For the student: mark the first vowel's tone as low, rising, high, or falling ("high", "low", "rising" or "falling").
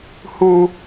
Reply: high